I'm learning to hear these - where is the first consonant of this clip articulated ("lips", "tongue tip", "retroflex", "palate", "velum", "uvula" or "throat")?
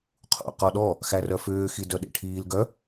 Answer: uvula